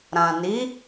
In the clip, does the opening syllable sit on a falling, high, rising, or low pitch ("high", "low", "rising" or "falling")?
low